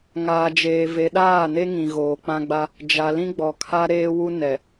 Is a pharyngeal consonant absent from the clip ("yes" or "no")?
yes